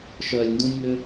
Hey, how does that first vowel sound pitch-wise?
low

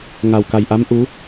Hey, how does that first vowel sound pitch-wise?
low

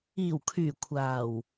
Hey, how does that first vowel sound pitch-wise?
low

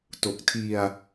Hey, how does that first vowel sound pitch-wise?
low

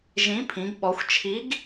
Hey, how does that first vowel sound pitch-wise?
rising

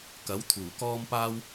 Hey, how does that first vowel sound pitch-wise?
rising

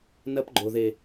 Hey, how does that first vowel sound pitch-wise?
high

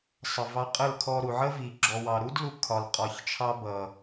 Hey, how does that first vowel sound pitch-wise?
low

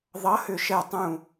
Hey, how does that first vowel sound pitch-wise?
rising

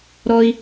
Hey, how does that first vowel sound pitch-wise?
high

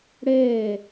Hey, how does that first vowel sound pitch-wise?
falling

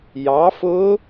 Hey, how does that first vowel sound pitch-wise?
rising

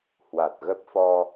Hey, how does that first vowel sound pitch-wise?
low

